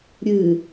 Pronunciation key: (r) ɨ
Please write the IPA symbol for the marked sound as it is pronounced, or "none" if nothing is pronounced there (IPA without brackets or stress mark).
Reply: ɾʲ